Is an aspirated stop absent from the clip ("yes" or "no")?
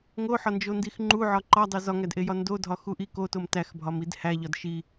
yes